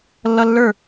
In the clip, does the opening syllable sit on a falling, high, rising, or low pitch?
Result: high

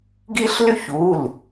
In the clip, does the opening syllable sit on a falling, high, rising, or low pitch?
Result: high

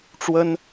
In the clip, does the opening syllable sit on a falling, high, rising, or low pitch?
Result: high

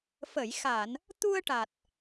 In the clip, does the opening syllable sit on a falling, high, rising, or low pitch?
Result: low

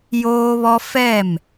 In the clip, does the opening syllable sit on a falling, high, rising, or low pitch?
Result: high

